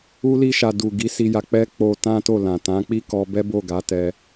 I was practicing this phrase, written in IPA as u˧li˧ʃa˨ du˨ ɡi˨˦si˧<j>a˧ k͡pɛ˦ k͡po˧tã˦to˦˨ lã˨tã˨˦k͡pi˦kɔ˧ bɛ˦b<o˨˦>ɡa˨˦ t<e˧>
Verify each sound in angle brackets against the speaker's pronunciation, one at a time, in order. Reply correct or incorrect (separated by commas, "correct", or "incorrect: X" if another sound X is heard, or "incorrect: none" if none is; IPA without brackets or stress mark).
correct, incorrect: o˦˨, incorrect: ɛ˧